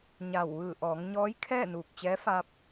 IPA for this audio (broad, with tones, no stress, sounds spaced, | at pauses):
ɲ a˧˩ w ʋ ɯː˧˩ ʔ ɔː˩˧ ŋ ɲ ɔː˧˥ j kʰ ɛː˥˨ n uː˧˩ k̚ t͡ɕ ɛː˧˥ f aː˧ p̚